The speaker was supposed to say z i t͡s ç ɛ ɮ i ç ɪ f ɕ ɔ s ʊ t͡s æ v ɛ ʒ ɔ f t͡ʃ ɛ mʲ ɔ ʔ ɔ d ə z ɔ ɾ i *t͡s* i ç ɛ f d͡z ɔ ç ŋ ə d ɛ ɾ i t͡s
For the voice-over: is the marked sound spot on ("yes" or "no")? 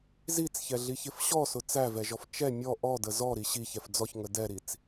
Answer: no